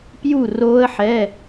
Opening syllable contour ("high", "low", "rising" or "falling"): falling